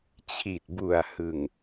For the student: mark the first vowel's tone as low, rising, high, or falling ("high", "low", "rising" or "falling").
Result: low